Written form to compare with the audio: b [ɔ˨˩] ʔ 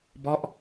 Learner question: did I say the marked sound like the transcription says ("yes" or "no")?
no